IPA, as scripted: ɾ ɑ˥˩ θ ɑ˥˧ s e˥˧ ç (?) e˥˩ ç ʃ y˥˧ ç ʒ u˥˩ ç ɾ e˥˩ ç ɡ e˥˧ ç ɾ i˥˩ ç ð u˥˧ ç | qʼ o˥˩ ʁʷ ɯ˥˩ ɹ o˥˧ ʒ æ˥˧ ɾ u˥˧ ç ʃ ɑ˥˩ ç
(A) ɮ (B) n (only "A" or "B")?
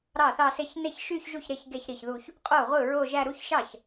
B